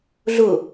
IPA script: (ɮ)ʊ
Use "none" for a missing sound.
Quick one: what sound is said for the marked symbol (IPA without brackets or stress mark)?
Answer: ɮ